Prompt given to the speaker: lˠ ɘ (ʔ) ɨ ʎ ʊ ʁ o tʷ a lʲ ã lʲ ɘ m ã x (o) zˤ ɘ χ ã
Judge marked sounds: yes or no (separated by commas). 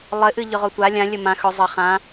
yes, no